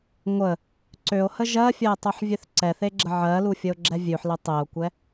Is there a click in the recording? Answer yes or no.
yes